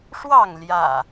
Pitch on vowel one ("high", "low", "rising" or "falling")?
falling